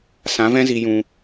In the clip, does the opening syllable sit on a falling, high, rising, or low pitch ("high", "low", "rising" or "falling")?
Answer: rising